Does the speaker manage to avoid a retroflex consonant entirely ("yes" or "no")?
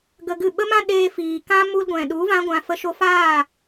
yes